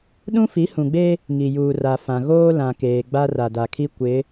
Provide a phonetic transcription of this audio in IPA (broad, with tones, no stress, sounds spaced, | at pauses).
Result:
ɗ ũ˦ f i˨˦ h ũ˨ ɡ͡b e˦ | ŋ i˨ j uː˨ r a˨ f ã˨ ɣ oː˦ l ã˨ k eː˨ ɡ͡b a˦ r a˨ d a˨ kʰ i˦ kʷ ɪ˨˦